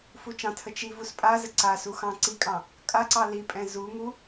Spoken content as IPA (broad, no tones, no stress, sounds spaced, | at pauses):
f u t͡ʃ ɑ̃ tʰ ə t͡ʃ i v u s pʼ a z ə ǀ a s u x ɑ̃ ǀ i kʼ ɑ̃ | kʼ a ǀ ɑ l i pʼ ɛ̃ z u ŋ u